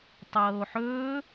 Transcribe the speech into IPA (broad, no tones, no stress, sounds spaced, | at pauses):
tˤ ɤː o̯ ħ ɵː